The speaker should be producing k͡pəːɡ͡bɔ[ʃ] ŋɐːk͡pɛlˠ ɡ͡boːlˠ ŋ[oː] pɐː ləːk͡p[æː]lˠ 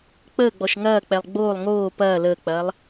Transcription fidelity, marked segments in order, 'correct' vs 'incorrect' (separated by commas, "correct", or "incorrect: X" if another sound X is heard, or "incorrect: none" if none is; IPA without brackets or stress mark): correct, correct, incorrect: ɐː